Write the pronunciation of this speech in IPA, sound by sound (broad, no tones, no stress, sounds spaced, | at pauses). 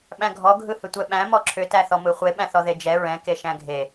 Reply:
ɓ æ̃ ɡʱ ɔ ɡʱ ɯ h ʏ tʷ ɛ ɓ æ̃ m ɔ ǁʰ ʏ t æ θ ɔ m ɯ χʷ e ɓ æ̃ θ ɔ ð e d͡ʒ ɛ ɹ ɛ̃ k e ʃ æ̃ ɡʱ e